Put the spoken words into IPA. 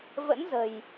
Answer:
v ə̰˧˥ n z ə̤˨˩ j

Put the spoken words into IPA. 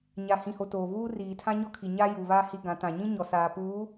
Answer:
ɲ a˨ h ĩ˨ h o˨ t oː˨ β uː˦ r iː˨ tʰ ã˦ ɲ ɔ˦ kʰ i˨ ɲ a˦ j u˨ β a˦ h i˦ ɡ ã˨˦ t ã˨ ɲ ĩ˦ ɲ ɔ˨ s aː˨ p uː˨˦

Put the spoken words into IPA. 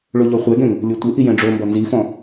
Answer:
ɭ ʊ ʎ ɔ χʷ ɛ ɡ ɛ̃ ŋ | lʲ o tʷ ɪ ʔ i j ɛ̃ ɖ͡ʐ o m b ɔ n z i f ɔ̃

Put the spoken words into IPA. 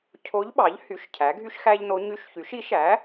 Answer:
cʰ o˧˥ ʎ ɓ ɑ˩˥ ʎ h y˩˥ ʃ cʰ æ˩˥ ɡʱ y˥ ʃ x æ˥ ʎ n o˧˥ ɲ y˧˥ ʃ ç y˩˥ ʃ i˩˥ ʃ æ˩˥

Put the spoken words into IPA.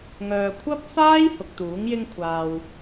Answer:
ŋ œː˨ kʷʰ ɐ˥ p̚ f aː˥ j h ʊ˨ k̚ t̪ uː˨˥ ŋ j ɪ˥ ŋ kʷʰ aː˧ w

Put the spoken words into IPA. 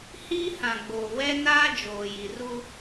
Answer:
h iː˦ h ã˨ ɡ͡b oː˨ w ɛ˦ n aː˦ d͡ʒ oː˨ j i˨ r u˦

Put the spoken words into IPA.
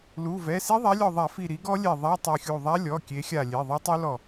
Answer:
l u˩˧˩ v ɛ˩˧˩ s i˦˥ ðˤ a˨˦ lʲ ɔ˧˩ ðˤ a˧˩˧ f i˧˩ ɾ i˨˦ ɡ ɔ˦˥ lʲ ɛ˧˩ ðˤ a˧˥˧ tˤ i˧˩ xʲ u˧˩ ðˤ a˦˥ lʲ ɔ˩˧˩ kʲ e˨˦ xʲ a˧˩ lʲ e˩˧˩ ðˤ e˦˥ tˤ u˦˥ l ɔ˧˩

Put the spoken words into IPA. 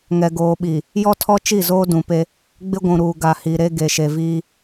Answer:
ŋ ɛ˨ ɡ oː˨ ɓ i˨ | j ɔ˦ tʰ ɔ˦ t͡ʃ i˦˨ z oː˦ d ũ˨ p e˦ | ɡ͡b ɪ˦ ɡʷ ũ˨ ɾ uː˨ ɡ a˨ h i˨ ɾ e˦ ɡ e˨ ʃ e˨ v iː˦

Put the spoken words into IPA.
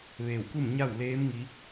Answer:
ʋ eː˧˩ w k u˥˨ m ɲ a˥˨ w l eː˧˥ m ŋ i˧˥

